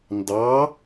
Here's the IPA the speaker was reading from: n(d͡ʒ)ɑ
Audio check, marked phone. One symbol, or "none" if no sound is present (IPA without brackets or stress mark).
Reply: d